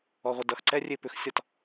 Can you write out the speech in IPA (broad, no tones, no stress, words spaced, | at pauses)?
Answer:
ɔʁʷədʌxǀɛ rʲepʏxsʲɒt